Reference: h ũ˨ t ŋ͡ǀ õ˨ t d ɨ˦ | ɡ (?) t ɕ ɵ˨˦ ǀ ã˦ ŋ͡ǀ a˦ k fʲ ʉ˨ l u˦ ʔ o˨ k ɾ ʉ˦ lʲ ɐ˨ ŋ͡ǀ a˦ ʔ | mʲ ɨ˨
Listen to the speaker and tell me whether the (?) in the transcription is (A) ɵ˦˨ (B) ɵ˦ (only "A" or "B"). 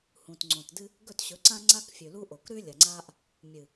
A